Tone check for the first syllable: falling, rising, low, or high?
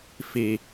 low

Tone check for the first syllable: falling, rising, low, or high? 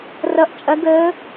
rising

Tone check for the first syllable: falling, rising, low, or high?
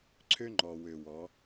high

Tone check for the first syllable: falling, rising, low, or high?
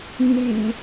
low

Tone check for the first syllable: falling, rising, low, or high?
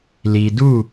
low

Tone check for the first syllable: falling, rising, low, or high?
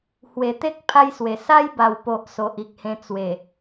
low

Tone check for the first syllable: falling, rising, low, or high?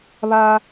high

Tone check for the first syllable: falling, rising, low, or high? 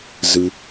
low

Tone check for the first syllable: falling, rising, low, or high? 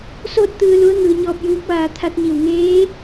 falling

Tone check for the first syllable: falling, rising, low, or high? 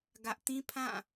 high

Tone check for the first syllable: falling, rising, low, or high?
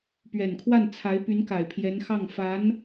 low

